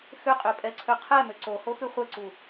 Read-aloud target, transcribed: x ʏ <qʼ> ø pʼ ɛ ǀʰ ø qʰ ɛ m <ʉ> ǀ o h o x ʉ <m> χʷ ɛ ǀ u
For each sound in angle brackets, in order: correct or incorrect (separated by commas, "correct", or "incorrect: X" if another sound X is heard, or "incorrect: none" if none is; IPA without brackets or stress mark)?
correct, incorrect: ø, incorrect: none